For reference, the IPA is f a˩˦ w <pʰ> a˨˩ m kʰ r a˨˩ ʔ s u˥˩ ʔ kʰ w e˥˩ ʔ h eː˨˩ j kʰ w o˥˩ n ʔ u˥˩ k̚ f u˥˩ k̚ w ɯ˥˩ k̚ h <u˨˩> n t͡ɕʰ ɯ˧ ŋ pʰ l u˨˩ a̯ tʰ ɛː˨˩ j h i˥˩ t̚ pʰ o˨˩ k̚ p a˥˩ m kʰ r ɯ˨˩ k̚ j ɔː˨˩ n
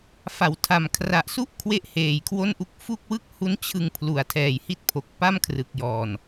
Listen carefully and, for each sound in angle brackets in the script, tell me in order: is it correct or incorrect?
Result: incorrect: tʰ, incorrect: u˦˥

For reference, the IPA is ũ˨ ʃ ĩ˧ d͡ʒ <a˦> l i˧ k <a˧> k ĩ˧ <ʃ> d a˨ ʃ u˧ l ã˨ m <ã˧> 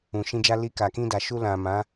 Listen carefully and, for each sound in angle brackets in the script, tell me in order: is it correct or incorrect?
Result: correct, incorrect: a˨, incorrect: none, incorrect: ã˨˦

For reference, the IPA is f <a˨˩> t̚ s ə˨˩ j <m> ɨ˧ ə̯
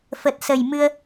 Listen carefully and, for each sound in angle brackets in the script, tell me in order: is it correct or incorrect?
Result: incorrect: ə˨˩, correct

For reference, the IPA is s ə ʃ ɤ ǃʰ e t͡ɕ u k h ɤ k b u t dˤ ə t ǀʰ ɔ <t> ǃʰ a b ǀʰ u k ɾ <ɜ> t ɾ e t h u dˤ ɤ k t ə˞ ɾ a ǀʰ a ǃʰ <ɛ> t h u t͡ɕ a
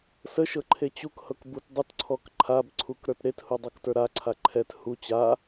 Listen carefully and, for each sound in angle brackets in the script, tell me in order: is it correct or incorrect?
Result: incorrect: k, incorrect: ə˞, correct

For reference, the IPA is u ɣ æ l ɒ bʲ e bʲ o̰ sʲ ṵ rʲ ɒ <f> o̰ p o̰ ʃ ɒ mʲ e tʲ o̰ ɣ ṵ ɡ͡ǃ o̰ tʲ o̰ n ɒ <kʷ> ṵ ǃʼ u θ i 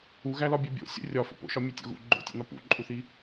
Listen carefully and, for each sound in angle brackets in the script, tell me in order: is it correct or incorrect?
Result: correct, incorrect: p

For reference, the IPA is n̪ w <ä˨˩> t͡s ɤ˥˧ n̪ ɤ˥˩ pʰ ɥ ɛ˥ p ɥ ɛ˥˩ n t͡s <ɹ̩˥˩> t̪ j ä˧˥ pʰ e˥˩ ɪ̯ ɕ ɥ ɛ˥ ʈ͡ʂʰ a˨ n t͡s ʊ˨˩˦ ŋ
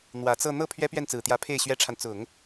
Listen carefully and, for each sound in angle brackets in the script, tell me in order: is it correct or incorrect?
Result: correct, incorrect: ɹ̩˨˩

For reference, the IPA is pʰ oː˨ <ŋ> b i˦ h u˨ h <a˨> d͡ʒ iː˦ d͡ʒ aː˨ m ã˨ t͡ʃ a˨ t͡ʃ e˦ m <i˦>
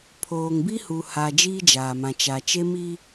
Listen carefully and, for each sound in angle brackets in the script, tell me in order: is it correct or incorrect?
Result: correct, correct, correct

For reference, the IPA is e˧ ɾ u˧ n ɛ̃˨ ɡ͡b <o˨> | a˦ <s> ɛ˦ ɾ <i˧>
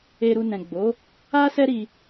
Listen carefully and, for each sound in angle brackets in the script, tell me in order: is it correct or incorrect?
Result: incorrect: o˨˦, correct, correct

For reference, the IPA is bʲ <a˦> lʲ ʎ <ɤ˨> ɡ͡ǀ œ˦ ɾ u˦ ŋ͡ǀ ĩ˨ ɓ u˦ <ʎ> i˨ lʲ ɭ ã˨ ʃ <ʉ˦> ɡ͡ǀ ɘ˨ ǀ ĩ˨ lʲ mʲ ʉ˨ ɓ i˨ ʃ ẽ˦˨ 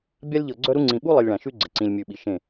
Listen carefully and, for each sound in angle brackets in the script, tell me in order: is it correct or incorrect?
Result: correct, correct, incorrect: lˠ, correct

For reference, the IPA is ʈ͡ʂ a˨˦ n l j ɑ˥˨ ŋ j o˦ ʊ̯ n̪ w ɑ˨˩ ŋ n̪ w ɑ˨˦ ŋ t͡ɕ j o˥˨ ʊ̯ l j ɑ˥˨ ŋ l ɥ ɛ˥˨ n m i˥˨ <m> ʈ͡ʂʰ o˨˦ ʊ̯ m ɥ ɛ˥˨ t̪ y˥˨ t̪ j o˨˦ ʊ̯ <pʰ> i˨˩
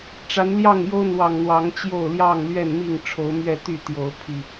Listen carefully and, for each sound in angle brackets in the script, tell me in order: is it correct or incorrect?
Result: incorrect: ŋ, correct

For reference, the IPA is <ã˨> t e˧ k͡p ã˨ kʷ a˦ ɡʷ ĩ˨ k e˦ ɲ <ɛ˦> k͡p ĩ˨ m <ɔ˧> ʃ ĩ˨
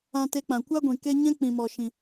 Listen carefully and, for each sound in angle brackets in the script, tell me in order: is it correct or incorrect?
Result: incorrect: ã˧, incorrect: ɛ̃˦, incorrect: ɔ˨

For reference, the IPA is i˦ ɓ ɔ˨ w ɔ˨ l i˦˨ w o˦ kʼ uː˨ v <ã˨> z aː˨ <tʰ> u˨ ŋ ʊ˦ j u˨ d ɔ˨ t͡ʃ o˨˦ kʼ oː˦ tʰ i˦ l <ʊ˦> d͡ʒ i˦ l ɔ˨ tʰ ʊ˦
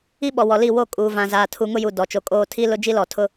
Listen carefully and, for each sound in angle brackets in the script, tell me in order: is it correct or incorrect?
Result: correct, correct, correct

